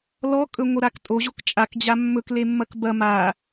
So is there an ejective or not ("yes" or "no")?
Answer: yes